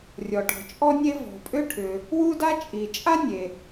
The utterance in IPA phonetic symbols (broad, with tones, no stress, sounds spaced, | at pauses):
rʲ ɔ˩ ʈ ɔ̤˩ t͡ʃʼ ɔ˥ nʲ e˥ v ɔ̤˩ pʼ ʏ˥ ʈʰ ʏ˩ | w u˥ d a˥ t͡ʃʼ i˩ t͡ʃʼ a˥ nʲ e˩